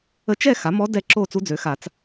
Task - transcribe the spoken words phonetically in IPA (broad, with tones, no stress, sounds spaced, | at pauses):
ə˧˥ t͡ʃ ɛ˥˨ x a˩˥ m ɔ˧˥ d ɛ˥˨ ǁ o˥˨ t͡s u˧˥ d͡z ø˩˥ x a˨˩˦ t͡s